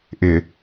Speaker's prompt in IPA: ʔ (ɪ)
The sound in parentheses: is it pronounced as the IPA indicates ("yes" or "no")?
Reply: yes